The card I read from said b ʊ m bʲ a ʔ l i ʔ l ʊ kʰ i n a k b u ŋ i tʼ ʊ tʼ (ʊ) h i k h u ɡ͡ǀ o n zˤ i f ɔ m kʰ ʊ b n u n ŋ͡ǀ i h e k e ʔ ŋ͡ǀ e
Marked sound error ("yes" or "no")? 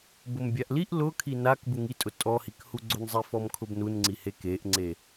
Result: yes